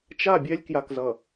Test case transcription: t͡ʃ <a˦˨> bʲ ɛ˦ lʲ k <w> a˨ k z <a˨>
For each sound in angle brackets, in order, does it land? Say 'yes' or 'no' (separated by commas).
yes, no, no